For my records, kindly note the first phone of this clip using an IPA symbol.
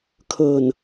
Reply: kʰ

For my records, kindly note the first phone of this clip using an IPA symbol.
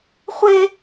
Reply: χʷ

